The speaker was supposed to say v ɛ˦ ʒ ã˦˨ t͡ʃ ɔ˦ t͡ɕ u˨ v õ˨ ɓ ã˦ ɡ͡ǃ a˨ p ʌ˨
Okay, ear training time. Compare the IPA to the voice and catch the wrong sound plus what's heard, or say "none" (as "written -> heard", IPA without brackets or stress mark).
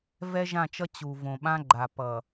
ɔ˦ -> ʌ˦